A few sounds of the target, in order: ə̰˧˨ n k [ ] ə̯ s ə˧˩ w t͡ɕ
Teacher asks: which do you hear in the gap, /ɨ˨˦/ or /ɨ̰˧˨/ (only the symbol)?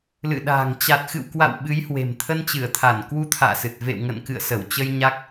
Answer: ɨ̰˧˨